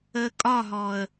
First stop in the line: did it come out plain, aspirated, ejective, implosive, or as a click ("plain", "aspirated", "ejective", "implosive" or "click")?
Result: ejective